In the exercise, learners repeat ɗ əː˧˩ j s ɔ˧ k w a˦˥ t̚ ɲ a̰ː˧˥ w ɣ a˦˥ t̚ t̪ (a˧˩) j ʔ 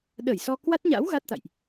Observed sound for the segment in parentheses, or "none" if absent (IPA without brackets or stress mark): a̰˧˨